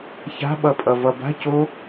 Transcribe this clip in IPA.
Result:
ç a̤ ɓ ʌ pʼ ʌ v ʌ b a̤ c o

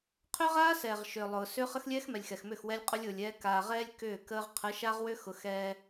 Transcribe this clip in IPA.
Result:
qʰ ʏ˦ ʁ aː˦ s ɛ˨ ʁ ʃ ʏː˨ lˠ ʊː˨ s ʏ˦ χ ə˦ x lʲ ɛː˦ x m ɛ˨ lʲ x ɛ˨ x m ʏ˦˨ x w ɛ˦ lʲ qʼ ʊ˦ lʲ ʊː˨ lʲ ɛː˦ k aː˨ ʁ ɛː˦ lʲ k ʏː˦˨ k əː˦ ʁ qʰ ə˨˦ ʃ a˦ ʁ w ʏ˦ x ʊ˨˦ x ɛː˦

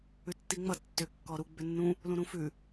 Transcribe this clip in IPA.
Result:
ʉ tː i ŋ͡m ʌ tː ʏ kː ɔ ɾ u ɡ͡b ʏ nː ũ | l ũ ɾ ũ f ʉ

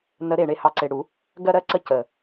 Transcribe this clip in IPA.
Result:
n ə˨˩˦ ɾ e˨˩ ɳ e˧ h ɑ˨˩ ǀ e˨˩ ɽ u˨˩˦ | ɡ ɜ˧ ɾ ɜ˧ ǀ ə˧ c ə˨˩

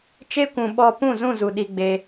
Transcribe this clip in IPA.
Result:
t͡ʃ e˧ kʷ ũ˨ ɓ ɔ˧ p ũ˦˨ z ũ˦˨ z u˨ ɗ i˧ ɡ͡b e˧

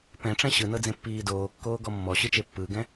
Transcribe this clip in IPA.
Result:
p ɛ̃ ʈ͡ʂ ɛ̃ ɕ ɯ n ɤ d͡z ẽ pː iː d oː kː oː ɡ ɔ mː ɔ ɕ ɯ t͡ʃ e pː ɯ ɡ ɛ̃

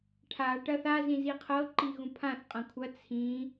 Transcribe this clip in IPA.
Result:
ʈʰ a ʈ ɐ θ a z ĩ z i qʰ ɤ ǃ i ɣ ũ pʰ ã θ qʼ ɐ̃ kʷʰ ɐ t͡sʰ ĩ

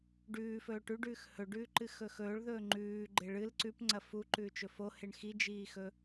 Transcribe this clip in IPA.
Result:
ɖ ʉː f ɵː ʈ ʉ ɖ ʉː x h ɵ ɖ ʉː ǃ ɨ x ɵ x ɵː ɭ ð ɵː ŋ͡ǃ ʉː ɡ͡ǃ e ɭ ɨ l ǀ ʉ p ŋ͡ǀ ɐ f u ǃ ʉː t͡ʃ ɵ f o h e ɳ x i d͡ʒ iː x ɵ

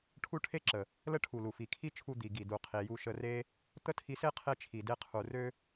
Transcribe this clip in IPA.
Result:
ʈʰ u˦ ʈʰ e˦ ǁ ə˨ | l ə˦ ʈʰ u˨ l u˨ f i˨ kʰ i˦ t͡ʃʰ u˧ d̪ i˨ ɡ i˨ d u˨ qʰ i˨ j u˧ ʃ ə˧ r e˦ | t̪ ə˦ tʰ i˧ s e˦ qʰ e˦ t͡ʃʰ i˨ d e˦ qʰ u˧ r ø˦

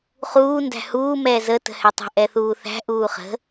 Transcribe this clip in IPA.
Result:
χ uː n d æ̤ h uː m ɛː z ə t ə̤ h ɛ tˤ ə̤ ʔ ɛ θ uː θ æ̤ ʔ uː χ ə̤

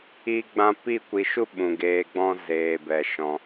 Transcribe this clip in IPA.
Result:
iː˦ ɡ͡b ã˦ p i˦˨ kʷ i˧ ʃ u˦ ɓ ũ˨ ɡ eː˧ ɡ͡b ɔ̃˦ z eː˨ b ɛ˨ ʃ ɔ̃˧

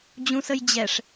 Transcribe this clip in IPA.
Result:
d͡ʑ ũ s ə j d͡ʑ ɛ ʂ

